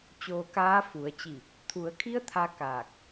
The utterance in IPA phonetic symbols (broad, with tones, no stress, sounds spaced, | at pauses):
t͡ɕ oː˧ k aː˧˥ f u˩˧ ə̯ t͡ɕ i˧˩ | t̪ʰ u˩˧ ə̯ kʰ i˧˥ ə̯ t̪ʰ a˧˥ k aː˧˩ k̚